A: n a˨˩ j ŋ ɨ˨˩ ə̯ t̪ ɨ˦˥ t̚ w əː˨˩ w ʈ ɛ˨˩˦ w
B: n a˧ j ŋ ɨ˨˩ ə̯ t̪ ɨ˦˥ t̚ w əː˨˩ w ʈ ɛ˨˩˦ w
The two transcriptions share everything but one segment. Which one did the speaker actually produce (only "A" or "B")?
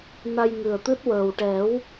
B